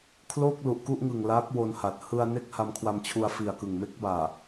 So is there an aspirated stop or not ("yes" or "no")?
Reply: yes